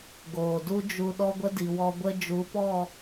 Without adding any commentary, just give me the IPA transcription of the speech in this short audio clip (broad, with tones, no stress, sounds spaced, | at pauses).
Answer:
ɡ oː˨ d u˦ d͡ʒ u˧ ɗ ɔ˦ ɡʷ ə˦ d i˨ w ɔ˧ ɡʷ ə˦ d͡ʒ u˨˦ p ɔ˦˨